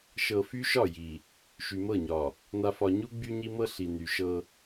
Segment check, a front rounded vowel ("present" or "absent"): present